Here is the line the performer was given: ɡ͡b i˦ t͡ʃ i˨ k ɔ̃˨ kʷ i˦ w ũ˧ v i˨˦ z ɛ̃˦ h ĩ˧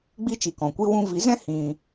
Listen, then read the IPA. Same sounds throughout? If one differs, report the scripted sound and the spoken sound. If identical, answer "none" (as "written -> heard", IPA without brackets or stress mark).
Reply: none